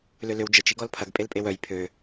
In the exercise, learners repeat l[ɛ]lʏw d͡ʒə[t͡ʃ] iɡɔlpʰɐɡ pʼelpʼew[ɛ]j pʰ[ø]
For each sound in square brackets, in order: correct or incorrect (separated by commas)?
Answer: incorrect, correct, incorrect, correct